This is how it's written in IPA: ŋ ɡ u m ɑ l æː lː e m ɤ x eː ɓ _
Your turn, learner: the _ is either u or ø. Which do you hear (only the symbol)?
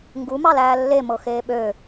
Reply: ø